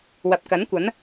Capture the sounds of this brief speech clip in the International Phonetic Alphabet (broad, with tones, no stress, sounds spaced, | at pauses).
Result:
w ɐ˨ p̚ k ɐ˨˥ n kʷ ɐ˨˥ n